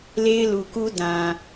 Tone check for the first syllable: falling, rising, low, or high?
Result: high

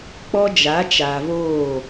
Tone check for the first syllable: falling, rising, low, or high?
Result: high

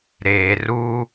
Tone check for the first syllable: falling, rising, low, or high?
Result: low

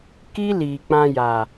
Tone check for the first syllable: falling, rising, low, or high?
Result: high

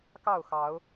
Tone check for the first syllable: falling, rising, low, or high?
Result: falling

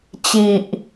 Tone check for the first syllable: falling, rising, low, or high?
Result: low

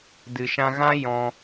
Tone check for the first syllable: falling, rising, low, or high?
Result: low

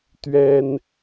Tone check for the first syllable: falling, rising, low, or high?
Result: high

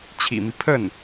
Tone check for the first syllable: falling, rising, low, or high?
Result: low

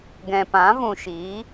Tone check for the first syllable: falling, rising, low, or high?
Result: low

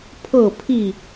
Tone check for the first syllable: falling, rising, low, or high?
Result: falling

